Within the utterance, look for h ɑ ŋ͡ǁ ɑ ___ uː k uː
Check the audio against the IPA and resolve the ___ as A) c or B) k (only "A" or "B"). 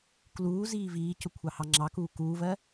B